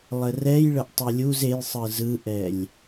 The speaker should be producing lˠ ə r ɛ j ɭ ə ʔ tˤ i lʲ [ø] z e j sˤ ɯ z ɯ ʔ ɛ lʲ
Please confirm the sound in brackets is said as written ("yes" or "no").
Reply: no